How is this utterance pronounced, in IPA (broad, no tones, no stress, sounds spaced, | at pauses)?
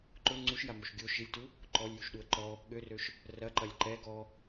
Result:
ǃ ʊ ŋ͡ǀ u ʃ j a m o ʃ ɡʲ o ʃ i lʲ t u | ǃ ɔ lʲ j u ʃ ɗ u ə̯ ǃ ɔ | ɠ ø r ø ʃ | r ɐ ǃ ɐ lʲ ǃ ɛ ɡ ɔ